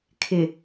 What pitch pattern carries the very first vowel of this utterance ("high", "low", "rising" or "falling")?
low